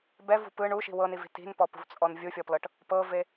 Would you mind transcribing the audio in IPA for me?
b ɛ v ṳ p ɯ ɳ u ʃ i̤ w ɤ n i v i̤ t i̤ n p ɔ p ṳ v t͡sʼ ɔ n vʲ u fʲ ɔ p l ɤ ʈ | p ɤ v e

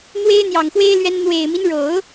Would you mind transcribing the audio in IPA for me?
n̪ w e˥ ɪ̯ n̪ j ɑ˨˩ ŋ x w e˥ ɪ̯ l ɥ ɛ˥ n n̪ w e˨˩ ɪ̯ m i˦ n ɻ o˨˩˦ ʊ̯

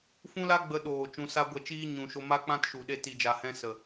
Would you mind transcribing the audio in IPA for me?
f ũ˦ l a˦ ɡ͡b ə˧ ɗ oː˨ t͡ʃ ũ˧ s a˦ ɡʷ ɛ˧ t͡ʃ iː˦ ɲ ũ˨ ʃ o˧ m a˦ k͡p ã˦ t ʃ u˨ ɗ e˧ t i˨ d͡ʒ a˨ h ɛ̃˧ s ə˨

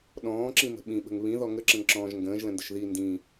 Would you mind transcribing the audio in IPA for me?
ɗ ɔ̃ː ǁ ĩ m ə̤ ɓ ĩ ɓ ə̤ ŋ β ĩ ð ɔ ŋ ə ǁ ə̃ ŋ ǁ ɔ̃ː ʒ ŋ ɡ ə̃ː ʒ l ə̃ n d ə ʃ ð i n d ĩ

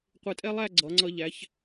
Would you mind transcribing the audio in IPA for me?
qʷ ɪ˧˩ tʼ ɛ˥ lˠ æ˥˧ ɡ͡ǀ ʌ˩˧ ŋ͡ǀ ʌ˧ ʎ æ˩˧ ç

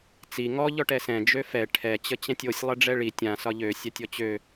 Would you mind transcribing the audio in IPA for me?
t͡s i ŋ ɔ ʎ ɔ ʈ ɛ s ɛ̃ d͡ʒ ø f ɛ ʈʰ ɛ t͡ɕ ə t͡ɕ ɛ̃ tʲ o sʲ lˠ ɛ ɖ͡ʐ ɛ ɭ i tʲ ã s ɒ ʎ ø sʲ a tʲ ɔ t͡ɕ ø

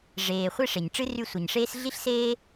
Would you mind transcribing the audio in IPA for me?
ʐ eː˩ χʷ e˦ ʂ e˩ ɲ ʈ͡ʂ ɨ˥ r y˦ sʷ ɐ˩ ɲ ʂ eː˥ s ɮ i˥ ɬ s eː˥

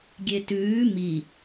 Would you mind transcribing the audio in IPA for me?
ɡʲ e t ʉː m i

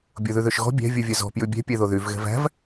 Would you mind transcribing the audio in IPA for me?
bʲ o ð ʉ ð ø ʃ ɣ ɔ̤ bʲ æ̤ vʲ u vʲ œ z ɔ̤ p j ʉ bʲ ɛ̤ pʲ ɛ ð o ð y v ɣ ɛ̤ v æ̤ v

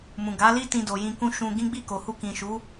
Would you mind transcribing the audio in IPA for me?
m ũ˨ ɡ a˨˦ l i˦ t ĩ˧ d o˨ j ĩ˧ k ũ˦ ʃ ũ˧ ɡ ĩ˦ ɡ͡b i˦˨ k o˨ h u˧ k ĩ˨ ʃ u˨˦

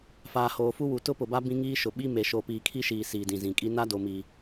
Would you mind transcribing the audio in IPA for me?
f aː˨ h oː˨ f u˦ w u˨ t ʊ˦ p ʊ˨ b a˦ b ĩ˦ ŋ iː˦ ʃ ʊ˨ ɓ i˦ m e˨ ʃ o˨ p iː˨ kʰ i˦ ʃ iː˨ s iː˨ d ĩ˨ z ĩ˨ kʼ i˦ n a˦ d o˨ m i˨

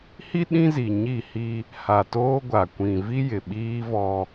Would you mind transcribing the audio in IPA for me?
h i˦ ɗ ĩ˦ z i˨ ɲ i˦˨ h i˦ | h a˨ t oː˦ ɡʷ a˨ kʷ ĩ˨ v i˦ j ɪ˨ ɓ iː˦ v ɔ˦

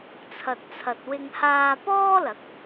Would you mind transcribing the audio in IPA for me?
t͡sʰ ɐ˨ t̚ t͡sʰ ɐ˨ t̚ w ɪ˧ ŋ h aː˧ p ɔː˥ l ɐ˨˥ k̚

